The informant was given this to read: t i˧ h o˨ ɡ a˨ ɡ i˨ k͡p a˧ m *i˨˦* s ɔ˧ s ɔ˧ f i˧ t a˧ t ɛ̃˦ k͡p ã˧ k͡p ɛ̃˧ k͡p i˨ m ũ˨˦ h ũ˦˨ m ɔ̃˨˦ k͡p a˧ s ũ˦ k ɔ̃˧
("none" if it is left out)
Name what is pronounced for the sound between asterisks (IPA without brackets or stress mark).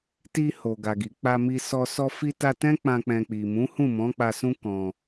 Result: i˧